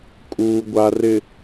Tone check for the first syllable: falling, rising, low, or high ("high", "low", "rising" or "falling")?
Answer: low